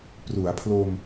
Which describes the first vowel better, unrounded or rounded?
rounded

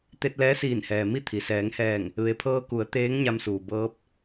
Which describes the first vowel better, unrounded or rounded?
unrounded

